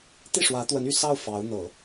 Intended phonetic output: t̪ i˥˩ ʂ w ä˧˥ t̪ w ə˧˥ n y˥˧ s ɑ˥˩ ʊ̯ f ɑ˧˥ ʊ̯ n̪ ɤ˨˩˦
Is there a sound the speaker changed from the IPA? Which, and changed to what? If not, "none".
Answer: none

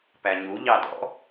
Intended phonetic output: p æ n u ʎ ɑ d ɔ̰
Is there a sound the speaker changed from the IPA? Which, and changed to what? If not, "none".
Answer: n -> ɲ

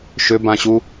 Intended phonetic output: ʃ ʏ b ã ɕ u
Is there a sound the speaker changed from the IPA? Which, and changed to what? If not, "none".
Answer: none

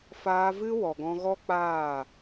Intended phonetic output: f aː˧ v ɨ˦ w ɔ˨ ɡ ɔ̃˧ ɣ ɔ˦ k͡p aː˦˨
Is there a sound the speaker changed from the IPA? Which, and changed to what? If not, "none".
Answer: none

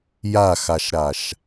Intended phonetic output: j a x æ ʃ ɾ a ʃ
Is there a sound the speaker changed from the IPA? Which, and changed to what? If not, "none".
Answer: æ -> a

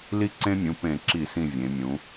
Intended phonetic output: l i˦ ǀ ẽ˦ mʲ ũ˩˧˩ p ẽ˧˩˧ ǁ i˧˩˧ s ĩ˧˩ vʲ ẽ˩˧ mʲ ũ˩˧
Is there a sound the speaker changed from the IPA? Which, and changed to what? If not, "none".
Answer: none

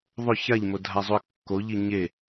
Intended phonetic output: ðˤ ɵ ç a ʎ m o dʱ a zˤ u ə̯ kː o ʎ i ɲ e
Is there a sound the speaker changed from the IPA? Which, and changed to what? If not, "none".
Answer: none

